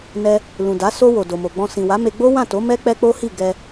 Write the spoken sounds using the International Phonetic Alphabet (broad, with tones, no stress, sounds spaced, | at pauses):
n ɛ˧ | l ũ˨ d a˨˦ s o˧ w o˨ d o˨ m o˨ ɡ͡b ɔ̃˧ s ĩ˨ w a˨˦ m e˧ ɡ͡b o˦ w ã˦˨ t o˨˦ m ɛ˦ k͡p ɛ˦ k͡p o˦ h i˦˨ ɡ ɛ˧